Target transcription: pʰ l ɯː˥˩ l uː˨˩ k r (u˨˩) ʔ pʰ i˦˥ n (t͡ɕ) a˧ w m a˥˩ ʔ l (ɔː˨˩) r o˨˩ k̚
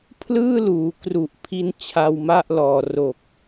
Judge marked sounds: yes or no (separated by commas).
yes, no, yes